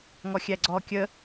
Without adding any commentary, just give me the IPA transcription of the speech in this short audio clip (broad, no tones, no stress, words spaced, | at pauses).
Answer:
ŋɔxʲæɡ͡ǀɔ kʲə